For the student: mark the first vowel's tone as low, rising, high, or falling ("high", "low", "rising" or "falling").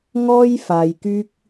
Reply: high